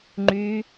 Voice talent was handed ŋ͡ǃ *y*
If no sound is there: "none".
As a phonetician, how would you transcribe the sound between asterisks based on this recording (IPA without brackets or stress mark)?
y